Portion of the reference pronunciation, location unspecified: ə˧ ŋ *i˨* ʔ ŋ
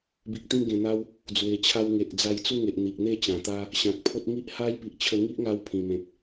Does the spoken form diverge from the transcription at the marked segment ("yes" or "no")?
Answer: yes